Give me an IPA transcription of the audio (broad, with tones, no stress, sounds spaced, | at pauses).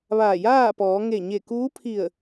ʋ aː˧˩ j aː˥˨ p ɔː˩˧ ŋ e˧˩ ɲ e˧˩ k uː˧˥ pʰ i˧˩ ə̯